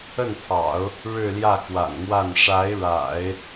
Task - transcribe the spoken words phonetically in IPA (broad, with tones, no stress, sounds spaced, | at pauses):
ə˥˩ n pʰ ɑ̰˨˩˦ ʊ̯ | ɻ ɻ̩˥˧ l j ä˥˩ k w a̰˨˩ n m w a˥˩ n ʂ a˧˥ ɪ̯ ɻ a̰˨˩˦ ɪ̯